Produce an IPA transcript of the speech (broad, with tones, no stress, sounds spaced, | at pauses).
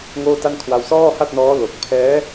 ŋ oː˥˩ t a˥˩ n kʰ w a˧ w s ɔː˥˩ h a˥˩ t̚ n ɔː˦˥ l o˨˩ k̚ pʰ ɛː˦˥